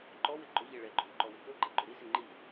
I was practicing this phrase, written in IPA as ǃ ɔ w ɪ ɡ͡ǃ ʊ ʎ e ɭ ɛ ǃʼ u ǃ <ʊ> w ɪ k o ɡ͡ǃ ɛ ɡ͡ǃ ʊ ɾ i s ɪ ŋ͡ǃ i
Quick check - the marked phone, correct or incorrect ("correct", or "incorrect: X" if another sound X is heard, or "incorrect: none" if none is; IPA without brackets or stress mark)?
incorrect: ɔ